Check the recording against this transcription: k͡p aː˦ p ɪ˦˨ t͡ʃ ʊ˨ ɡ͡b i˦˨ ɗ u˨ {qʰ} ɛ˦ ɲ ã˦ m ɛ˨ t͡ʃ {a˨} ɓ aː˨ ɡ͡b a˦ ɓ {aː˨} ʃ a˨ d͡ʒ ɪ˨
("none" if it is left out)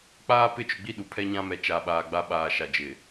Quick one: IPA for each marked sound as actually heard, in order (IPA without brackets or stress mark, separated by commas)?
pʰ, a˨, aː˨